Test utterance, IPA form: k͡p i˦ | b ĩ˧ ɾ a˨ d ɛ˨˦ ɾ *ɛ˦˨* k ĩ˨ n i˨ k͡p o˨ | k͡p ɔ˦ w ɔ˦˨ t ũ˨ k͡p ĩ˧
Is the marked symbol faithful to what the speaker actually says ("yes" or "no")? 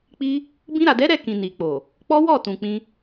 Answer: yes